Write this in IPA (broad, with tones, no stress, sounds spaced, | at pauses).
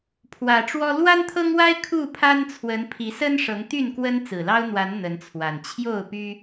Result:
pʰ w ä˨˩ ʈ͡ʂ w ɔ˦ l w a˦ n t̪ʰ ɤ˦ ŋ w a˦ ɪ̯ kʰ u˥˨ pʰ a˦ n t͡sʰ w ə˨˦ n pʰ i˨˦ s ə˦ n ʂ ɤ˨˦ ŋ t̪ y˥˨ n k w ə˦ n t͡s ɹ̩˨˩ l ɑ˦ ʊ̯ n̪ w a˨˦ n n̪ ə˨˦ n t͡sʰ w a˨˩ n t͡ɕʰ j o˥˨ ʊ̯ p y˦